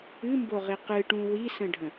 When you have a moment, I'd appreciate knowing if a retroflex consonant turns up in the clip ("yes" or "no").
yes